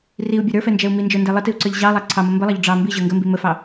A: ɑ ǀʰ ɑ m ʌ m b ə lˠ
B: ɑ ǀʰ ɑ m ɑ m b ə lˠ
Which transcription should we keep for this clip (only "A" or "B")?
A